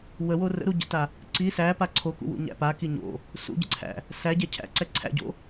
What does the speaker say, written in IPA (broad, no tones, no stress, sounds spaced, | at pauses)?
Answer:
w ə w o r ə̰ ɾ u ɟ ə̰ t a | ǀ i s æ p a ǀʰ o k ṵ w ṵ ɲ æ̰ p a k i ɲ o̰ | s ṵ ɟ ə̰ ǀʰ æ̰ | s æ ɟ ɛ cʰ æ̰ ǀ ɛ ǀʰ æ̰ ɟ o̰